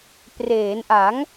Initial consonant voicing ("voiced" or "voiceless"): voiceless